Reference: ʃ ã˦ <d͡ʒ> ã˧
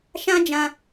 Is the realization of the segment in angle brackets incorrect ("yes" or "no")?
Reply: no